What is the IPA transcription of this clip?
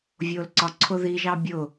vʲ ʊː l ǀ ɒ ǀʰ ʊ ð i ʒ ɑ bʲ ʊ

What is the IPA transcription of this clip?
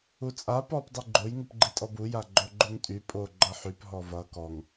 u t͡sʼ a p ɔ p dˤ i ɡ͡ǃ o j ŋ u p ɡ͡ǃ i tʼ ɔ b u j a ɡ͡ǃ o ɡ͡ǃ u ŋ tʼ y pʼ o ɡ͡ǃ ʌ ħ y p ɦ ɔ v ʌ k ɔ ŋ

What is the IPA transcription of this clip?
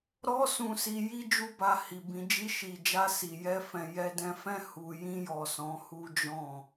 ɾ ɔ˧ s ũ˧ s i˧ j i˦ d͡ʒ u˦ b a˧ h i˨ b ĩ˨˦ d͡ʒ i˧ ʃ i˨ d͡ʒ a˧ s i˨ j ɛ˧ f ɛ̃˦ j ɛ˧ d ɛ̃˧ f ɛ̃˦ h u˧ j ĩ˧ j ɔ˨ s ɔ̃˨˦ h u˦ d͡ʒ ɔ̃˦˨

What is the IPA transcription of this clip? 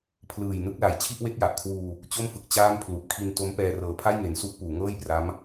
pʰ l ɯː˨˩ j n ɯ˦˥ k̚ l a˨˩ j t͡ɕʰ i˥˩ ʔ w e˦˥ k̚ j a˨˩ ʔ kʰ w uː˧ | t͡ɕ o˥˩ m f ɯ˨˩ k̚ t͡ɕ aː˥˩ m pʰ l u˨˩ ʔ kʰ i˧ n t o˦˥ m p ɛː˧ r ɤː˨˩ pʰ a˥˩ j ŋ e˩˦ n s u˦˥ ʔ p uː˩˦ ŋ ɤː˥˩ j p r a˦˥ m

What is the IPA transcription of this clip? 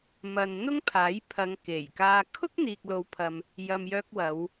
m ɐ˨ n n̪ ʊ˥ ŋ pʰ aː˨˥ j pʰ ɐ˨˧ ŋ k e˨˩ j k aː˧ kʰ ʊ˥ k̚ n̪ iː˨ k̚ l o˨˧ w pʰ ɐ˨ m | j ɐ˨ m j œː˧ k̚ w ɐ˨˧ w

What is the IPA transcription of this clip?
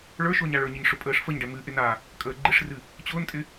ɭ ə˞ ʃ ʊː ɲ a ɭ ə˞ ɲ ɪ ɲ ʂ ʊ pʼ əː ʂ f ə ɲ ɖ ɛ m ɨ ʔ ɪ n a | kʼ əː ɡ͡ǃ ɪ ʂ r ɨ | t͡ɕ ʊː n tʼ ɪ

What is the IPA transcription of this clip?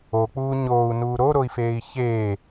o k͡p uː ɲ oː u̯ n uː ɾ o ɾ o i̯ f eː i̯ ç eː

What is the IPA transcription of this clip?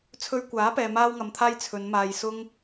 t͡sʰ ɵ˧ ɥ kʷ aː˨˥ p ɛː˧ m aː˥ w ŋ ɐ˧ m t̪ʰ aː˥ j t͡sʰ ɵ˨˧ n m aː˧ j s ʊ˥ ŋ

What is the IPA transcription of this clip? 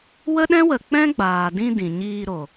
w ə˦ ɗ ɛ̃˦ w ə˨ k͡p ɛ̃˦ ɡ͡b aː˨ d ĩ˧ d ĩ˨ ɲ iː˧ ɾ o˨

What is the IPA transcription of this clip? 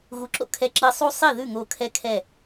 ɣ u˨˥ ǁ o̰˧ kʰ ɛ˧˩ ǁ i˧˩ sˤ u˥ sˤ i˥˩ ð ʉ˥˩ ŋ o˧˩ kʰ ɛ˥ kʰ ɛ˥˩

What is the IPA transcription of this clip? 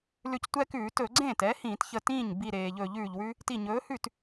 l ʉ˧˩ c tʷ ɛ˦ k ʉː˧˩˧ t ɵ˧˩˧ ɡ͡ǀ ẽː˥˩ t ɛ˨˥ h ĩː˧˩˧ t ç ə˧˩ t ĩː˥˩ ɲ b i˧˩ ɾ eː˩ ʎ ɵː˧˩˧ ʎ ʉː˩ ʎ w ʉ˦ | t i˧˩ ɲ ɵː˨˥ h ʉ˥˩ t

